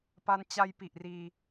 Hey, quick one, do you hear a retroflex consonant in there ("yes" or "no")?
no